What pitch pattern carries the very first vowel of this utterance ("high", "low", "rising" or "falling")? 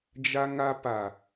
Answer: high